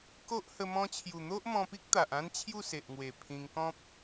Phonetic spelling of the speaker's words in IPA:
k o˦ ʔ h ə˧ m ɔ̃˧ t͡ɕʰ j u˨˩ n̪ o˦ ʔ m ɔ̃˧ p i˦ k̚ t̪ a˨ ʔ ã˦ n t͡ɕʰ j u˥˧ s e˨ ʔ ŋ w e˨˩ pʰ ĩ˧ ŋ k ɔ̃˦ p̚

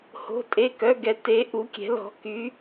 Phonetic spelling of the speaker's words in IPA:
h o̤˧˥˧ tʼ e˧˥˧ k œ˧˥˧ ɡ ɛ˧˥ t e˧˥ ʔ u˧˥ kʲ ɛ̤˧˥ l ɔ̤˧˥ k y˧˥

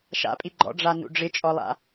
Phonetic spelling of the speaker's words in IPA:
ʃ a̰ pʼ i ɡ͡ǃ ɔ̰ ɖ͡ʐ a n ṵ ɖ͡ʐ ɪ t͡ʃʼ ɔ lˠ a̰

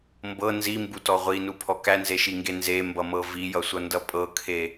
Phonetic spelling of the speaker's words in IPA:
m b ɤ n z i m b u t ɔ ʁʷ i n u pʰ ɔ k æ n z e ʃ i ŋ ɡ e n z e m b ʌ m ɤ v i j ʌ sʷ ʌ n d ʌ pʼ ɤ kʰ e

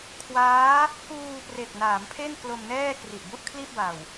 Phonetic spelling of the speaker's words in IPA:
kʰ w aː˦˥ | k uː˧ p r e˨˩ k̚ n aː˩˦ m pʰ e˥˩ n k l o˧ m n ɛː˥˩ k r i˨˩ ʔ b u˥˩ ʔ kʰ l i˥˩ ʔ b a˨˩ w

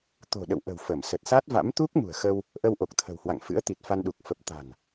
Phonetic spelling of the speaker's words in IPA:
t̪ o̤˨˩ ɗ ə̰˧˨ w ʔ ə̤˨˩ w f ə˧˩ m s ə˨˩ t̚ s a˦˥ t̚ v a̰˧˥ m t̪ u˦˥ k̚ m ṳ˨˩ ə̯ x ə˧ w | ʔ ə˧ w ʔ o˨˩ k̚ t̪ʰ ə̤˨˩ w h w a̰˧˨ ŋ f ɨ̰˧˥ ə̯ t̪ i˨˩ t̚ f a˧ n ɗ u˨˩ k̚ f ə˨˩ p̚ t̪ a̤˨˩ n

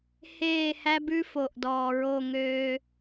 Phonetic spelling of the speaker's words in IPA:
h eː˦˨ h æ˦ b ʉ˦ f o˨ ʔ d ɔː˨ ɹ o˦˨ ŋ øː˦

